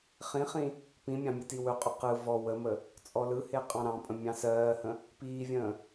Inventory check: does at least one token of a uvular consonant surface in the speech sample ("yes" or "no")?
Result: yes